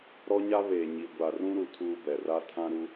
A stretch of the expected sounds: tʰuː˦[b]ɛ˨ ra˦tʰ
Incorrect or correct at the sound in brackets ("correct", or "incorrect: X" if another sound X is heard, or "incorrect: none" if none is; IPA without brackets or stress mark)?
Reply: correct